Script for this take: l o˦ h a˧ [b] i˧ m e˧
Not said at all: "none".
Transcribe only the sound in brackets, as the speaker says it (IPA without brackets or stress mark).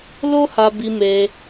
b